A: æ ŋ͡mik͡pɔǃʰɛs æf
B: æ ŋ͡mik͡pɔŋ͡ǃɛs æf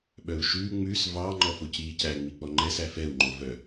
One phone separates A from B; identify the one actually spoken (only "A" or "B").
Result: B